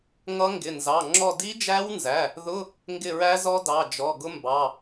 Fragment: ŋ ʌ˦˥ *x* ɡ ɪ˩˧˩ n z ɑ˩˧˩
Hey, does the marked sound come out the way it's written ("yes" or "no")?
no